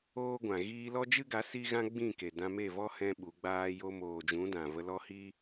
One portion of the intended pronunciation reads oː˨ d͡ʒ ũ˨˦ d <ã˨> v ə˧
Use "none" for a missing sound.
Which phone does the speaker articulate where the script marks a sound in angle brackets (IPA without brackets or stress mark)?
ã˨